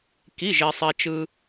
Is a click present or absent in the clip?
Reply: absent